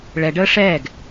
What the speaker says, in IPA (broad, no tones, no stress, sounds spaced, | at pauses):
ɭ ɛ ɖ əː ʂ ɛː ɡ